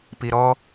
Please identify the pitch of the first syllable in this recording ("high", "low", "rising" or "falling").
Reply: low